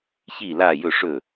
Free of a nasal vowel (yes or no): yes